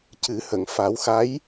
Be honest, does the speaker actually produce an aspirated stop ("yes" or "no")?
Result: no